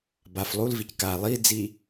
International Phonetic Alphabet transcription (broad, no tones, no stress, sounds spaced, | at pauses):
b a f lˠ u l v i c k a lˠ i d͡z i